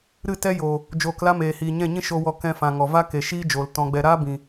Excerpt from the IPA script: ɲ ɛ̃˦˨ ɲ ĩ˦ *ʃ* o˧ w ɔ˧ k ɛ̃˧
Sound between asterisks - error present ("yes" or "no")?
no